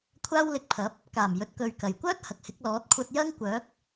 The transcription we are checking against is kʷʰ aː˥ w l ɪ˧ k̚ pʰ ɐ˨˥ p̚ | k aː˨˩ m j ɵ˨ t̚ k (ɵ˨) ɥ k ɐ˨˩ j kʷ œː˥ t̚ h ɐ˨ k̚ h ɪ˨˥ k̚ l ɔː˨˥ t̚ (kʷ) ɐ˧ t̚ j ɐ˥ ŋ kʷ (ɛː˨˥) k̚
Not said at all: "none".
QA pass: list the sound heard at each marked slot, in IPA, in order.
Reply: ɵ˨, kʷʰ, œː˨˥

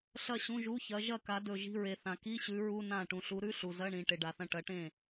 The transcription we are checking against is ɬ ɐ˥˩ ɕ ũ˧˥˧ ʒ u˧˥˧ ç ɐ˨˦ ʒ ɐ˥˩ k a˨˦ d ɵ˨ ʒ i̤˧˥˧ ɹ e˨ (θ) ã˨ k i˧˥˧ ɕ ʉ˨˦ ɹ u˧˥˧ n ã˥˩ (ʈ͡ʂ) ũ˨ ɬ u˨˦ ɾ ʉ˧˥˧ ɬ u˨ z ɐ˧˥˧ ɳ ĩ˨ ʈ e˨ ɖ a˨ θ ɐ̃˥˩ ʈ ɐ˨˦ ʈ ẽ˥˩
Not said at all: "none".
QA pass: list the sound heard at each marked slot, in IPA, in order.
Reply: θ, ʈ

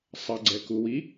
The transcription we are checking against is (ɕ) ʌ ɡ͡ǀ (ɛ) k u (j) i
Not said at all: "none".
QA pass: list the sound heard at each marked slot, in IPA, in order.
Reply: sˤ, ɛ, w

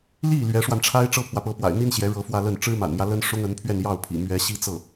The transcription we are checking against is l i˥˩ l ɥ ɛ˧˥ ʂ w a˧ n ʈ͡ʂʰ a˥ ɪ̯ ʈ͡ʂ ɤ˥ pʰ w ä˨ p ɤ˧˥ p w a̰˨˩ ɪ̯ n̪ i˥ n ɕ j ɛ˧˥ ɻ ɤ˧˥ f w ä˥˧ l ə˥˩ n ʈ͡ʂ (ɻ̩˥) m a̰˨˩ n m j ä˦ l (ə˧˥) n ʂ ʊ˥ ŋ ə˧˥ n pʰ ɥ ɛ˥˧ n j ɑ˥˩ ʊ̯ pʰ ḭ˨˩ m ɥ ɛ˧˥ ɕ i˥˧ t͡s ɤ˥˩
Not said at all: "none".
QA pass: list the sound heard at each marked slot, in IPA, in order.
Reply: ɻ̩˥, ə˥

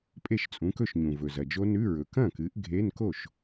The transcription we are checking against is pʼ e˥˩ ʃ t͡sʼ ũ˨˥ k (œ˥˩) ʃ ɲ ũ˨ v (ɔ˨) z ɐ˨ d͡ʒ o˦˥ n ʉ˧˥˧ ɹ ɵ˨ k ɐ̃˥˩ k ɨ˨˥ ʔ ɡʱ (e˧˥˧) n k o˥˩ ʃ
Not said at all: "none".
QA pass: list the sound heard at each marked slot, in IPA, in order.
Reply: ɵ˥˩, ɵ˨, e˧˥˧

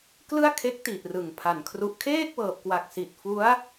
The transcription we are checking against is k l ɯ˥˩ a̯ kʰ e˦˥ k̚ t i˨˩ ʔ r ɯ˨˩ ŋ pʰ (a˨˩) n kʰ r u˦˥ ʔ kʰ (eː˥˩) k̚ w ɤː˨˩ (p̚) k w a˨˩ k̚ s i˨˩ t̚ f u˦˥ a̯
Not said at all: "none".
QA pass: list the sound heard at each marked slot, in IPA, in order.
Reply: a˨˩, eː˥˩, p̚

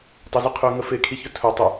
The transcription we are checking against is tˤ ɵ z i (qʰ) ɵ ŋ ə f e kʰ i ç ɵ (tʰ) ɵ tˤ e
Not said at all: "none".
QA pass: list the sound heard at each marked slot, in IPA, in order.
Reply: qʰ, tʰ

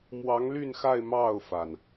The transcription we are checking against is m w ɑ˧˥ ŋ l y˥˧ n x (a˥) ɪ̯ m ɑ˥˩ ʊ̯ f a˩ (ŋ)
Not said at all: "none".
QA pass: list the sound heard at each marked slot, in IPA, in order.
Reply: a˥˧, n

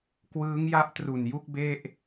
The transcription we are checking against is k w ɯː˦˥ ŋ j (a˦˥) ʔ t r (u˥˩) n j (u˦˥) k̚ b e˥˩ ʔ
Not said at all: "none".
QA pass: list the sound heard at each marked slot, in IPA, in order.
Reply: a˦˥, u˨˩, u˥˩

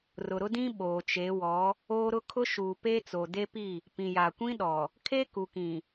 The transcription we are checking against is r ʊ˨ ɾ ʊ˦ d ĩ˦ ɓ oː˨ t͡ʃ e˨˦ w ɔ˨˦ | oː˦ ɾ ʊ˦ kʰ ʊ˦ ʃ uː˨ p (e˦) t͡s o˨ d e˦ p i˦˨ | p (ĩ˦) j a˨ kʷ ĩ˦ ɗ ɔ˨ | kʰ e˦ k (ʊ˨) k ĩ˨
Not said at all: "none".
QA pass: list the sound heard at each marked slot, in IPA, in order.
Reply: e˦, ĩ˨, u˨

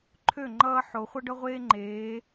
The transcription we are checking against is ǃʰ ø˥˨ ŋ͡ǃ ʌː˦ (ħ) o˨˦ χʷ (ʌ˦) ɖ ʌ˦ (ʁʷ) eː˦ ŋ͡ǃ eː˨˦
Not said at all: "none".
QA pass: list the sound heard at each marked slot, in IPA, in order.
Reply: ħ, ʌ˦, ʁʷ

